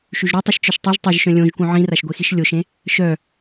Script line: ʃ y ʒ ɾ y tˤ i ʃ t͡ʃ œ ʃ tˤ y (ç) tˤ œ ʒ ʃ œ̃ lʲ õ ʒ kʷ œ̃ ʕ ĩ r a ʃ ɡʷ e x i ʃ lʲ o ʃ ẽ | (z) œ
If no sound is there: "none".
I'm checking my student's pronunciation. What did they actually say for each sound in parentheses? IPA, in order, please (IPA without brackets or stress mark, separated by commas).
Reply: ʒ, ʃ